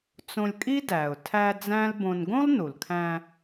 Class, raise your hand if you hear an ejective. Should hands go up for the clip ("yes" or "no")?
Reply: yes